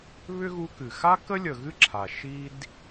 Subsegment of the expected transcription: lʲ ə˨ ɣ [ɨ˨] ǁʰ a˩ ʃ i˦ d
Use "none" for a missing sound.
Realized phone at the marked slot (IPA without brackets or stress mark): ɨ˥